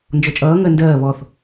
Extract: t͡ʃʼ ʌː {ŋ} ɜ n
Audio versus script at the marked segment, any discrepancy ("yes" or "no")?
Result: no